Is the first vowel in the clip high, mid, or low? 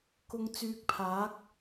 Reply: high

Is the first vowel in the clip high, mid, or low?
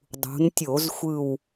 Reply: high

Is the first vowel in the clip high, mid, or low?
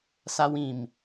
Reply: low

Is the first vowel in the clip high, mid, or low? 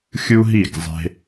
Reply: high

